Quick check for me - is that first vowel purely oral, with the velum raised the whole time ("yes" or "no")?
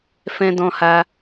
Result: no